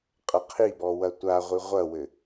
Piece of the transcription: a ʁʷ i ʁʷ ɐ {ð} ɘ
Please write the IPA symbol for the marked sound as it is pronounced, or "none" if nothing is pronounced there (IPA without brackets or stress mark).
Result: w